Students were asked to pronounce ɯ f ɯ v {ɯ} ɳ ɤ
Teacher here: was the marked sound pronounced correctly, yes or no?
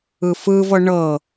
no